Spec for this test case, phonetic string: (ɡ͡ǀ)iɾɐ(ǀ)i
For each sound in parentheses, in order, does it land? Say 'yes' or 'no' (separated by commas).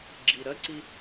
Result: no, yes